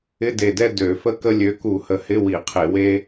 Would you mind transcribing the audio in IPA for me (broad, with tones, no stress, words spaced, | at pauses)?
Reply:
ɪ˧˥˧de˨˩dɛ˥˧ dø˧˩˧fə˥kə˥ lʲø˨˦ku˧˩˧hə˨˩hɪ˧˥˧ wi˧˩˧qʰe˧˩˧we˥